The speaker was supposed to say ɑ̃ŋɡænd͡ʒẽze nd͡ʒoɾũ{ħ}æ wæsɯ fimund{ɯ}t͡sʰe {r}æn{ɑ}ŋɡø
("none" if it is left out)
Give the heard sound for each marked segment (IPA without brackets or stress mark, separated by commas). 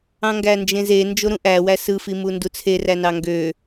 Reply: ʔ, u, r, ɑ